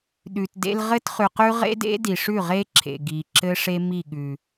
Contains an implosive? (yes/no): yes